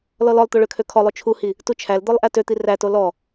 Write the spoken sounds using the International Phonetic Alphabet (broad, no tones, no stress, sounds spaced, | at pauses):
l ɔ l ɔ lˠ t̪ o ɭ ø kʰ ø kʰ ɔ lˠ o t͡ʃʰ u h i | t u t͡ʃʰ æ l d̪ ɔ lˠ ʔ æ t ø t̪ i r æ t o l ɔ